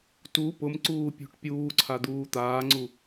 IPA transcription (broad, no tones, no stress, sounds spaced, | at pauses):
t u p ʊ m ǀ uː pʲ o̤ ʈ pʲ uː ǀʰ a d̪ uː t̪ aː ŋ͡ǀ u